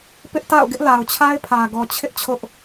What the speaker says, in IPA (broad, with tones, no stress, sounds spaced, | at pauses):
p ɪ˦ ʔ t a̰˦˨ ʊ̯ ɡ ɪ˦ ʔ l a˨ ʊ̯ t͡ɕʰ a˦ ɪ̯ pʰ ä˨ ɡ ɔ˨ t͡ɕʰ ɪ˦ ʔ t͡ɕʰ ʊ˦ ʔ